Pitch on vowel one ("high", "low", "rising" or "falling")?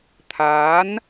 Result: rising